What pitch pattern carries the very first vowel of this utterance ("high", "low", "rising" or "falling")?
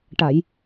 low